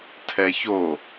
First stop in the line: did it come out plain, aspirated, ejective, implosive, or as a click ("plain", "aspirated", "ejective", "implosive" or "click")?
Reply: aspirated